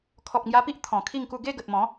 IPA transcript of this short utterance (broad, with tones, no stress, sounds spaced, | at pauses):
kʰ ɔ˨ p̚ ŋ j a˧ p i˦ ʔ t̪ʰ ɔ̃˨˩ kʰ i˥˧ ŋ k u˥˧ ɡ e˥˧ ɡ ə˨ t̚ m ɔ̃˨˦